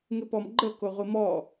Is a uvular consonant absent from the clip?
no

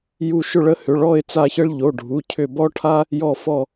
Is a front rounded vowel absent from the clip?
no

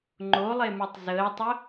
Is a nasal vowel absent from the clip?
yes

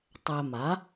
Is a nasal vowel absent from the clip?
yes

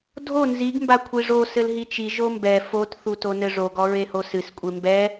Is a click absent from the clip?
yes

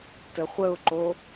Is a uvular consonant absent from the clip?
no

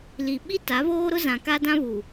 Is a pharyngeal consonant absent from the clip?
yes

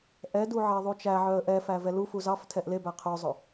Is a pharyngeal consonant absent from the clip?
no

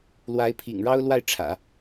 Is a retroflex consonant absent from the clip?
no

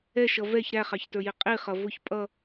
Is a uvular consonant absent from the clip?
no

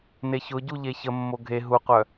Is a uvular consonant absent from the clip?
no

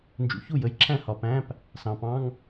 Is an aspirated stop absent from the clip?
no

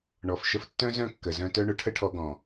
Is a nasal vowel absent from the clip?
no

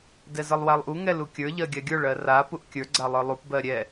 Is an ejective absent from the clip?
yes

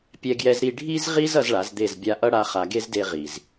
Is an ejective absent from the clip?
yes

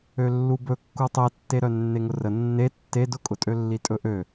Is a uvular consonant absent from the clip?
yes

